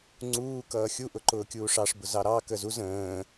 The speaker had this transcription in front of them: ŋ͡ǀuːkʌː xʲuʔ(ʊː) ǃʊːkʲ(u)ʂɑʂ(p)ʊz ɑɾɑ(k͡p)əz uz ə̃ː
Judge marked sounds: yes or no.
no, no, no, no

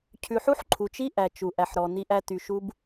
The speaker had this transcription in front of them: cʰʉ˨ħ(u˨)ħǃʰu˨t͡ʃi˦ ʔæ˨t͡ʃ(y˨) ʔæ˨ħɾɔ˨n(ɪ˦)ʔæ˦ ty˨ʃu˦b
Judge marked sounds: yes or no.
no, no, no

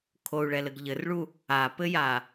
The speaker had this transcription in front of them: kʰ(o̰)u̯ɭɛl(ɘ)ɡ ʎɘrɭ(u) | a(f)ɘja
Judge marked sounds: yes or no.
no, yes, yes, no

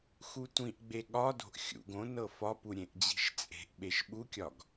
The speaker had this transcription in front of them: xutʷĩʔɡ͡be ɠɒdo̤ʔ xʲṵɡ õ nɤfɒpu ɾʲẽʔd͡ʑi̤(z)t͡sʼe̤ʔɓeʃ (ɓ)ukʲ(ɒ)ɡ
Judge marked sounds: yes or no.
no, yes, yes

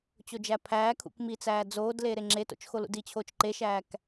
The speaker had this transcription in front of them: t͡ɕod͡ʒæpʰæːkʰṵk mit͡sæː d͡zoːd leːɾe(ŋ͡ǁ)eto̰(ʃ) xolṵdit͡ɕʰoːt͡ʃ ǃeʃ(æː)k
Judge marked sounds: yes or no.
yes, no, yes

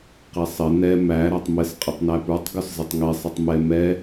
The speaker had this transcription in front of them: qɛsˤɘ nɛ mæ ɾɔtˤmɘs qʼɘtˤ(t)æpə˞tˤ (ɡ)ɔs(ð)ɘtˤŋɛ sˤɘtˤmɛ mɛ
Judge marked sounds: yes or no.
no, yes, no

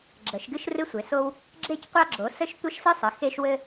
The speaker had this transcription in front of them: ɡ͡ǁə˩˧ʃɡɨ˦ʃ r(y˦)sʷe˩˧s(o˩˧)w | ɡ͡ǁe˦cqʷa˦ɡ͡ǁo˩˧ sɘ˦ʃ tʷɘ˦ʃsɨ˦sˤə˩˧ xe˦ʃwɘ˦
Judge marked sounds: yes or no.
no, no

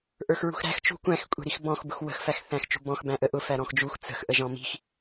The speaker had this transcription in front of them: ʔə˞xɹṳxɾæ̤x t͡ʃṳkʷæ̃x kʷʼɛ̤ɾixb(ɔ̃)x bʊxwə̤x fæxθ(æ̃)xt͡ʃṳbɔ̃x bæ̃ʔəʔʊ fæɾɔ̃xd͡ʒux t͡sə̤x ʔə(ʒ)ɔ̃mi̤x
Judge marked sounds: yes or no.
yes, yes, yes

